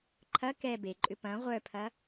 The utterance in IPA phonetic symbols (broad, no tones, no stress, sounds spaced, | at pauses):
ǃʰ ɐ k ɛ b e ǃʼ ʏ p ɐ̃ ʁʷ œ pʰ ɐ